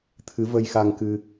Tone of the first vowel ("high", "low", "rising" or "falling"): rising